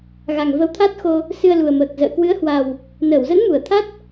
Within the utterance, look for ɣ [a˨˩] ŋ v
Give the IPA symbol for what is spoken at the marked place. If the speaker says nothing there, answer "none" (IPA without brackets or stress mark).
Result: a˨˩